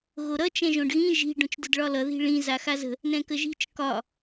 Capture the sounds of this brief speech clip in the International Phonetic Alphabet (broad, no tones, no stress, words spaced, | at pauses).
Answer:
ɣoɾʌ t͡ʃɛ̃ʒõɖɣĩ ʒi̤ ɖõt͡ʃdədɭɒlʌ ði̤ɭĩ zaxazə̤ | nɛ̃kəʒi̤t͡ʃ kɒ